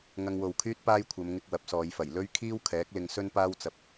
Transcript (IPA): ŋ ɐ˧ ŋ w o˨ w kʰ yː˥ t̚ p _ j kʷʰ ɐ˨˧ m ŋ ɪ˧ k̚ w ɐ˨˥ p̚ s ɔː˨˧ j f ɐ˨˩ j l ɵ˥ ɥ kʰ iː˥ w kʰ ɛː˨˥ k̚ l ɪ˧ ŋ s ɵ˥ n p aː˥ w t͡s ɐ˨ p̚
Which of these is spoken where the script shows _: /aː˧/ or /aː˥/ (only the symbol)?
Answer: aː˥